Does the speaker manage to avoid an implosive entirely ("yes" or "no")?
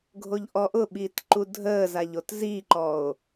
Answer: no